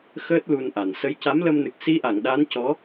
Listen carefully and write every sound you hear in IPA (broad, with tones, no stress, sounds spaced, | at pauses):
x əː˦˥ t̚ l u˧ n ʔ a˨˩ n s ə˧˥ j c a˧˥ m l ə˧ m n ɨ˨˩ k̚ s i˧˥ ʔ a˨˩˨ ŋ ɗ a˧˥ n c ɔ˧˥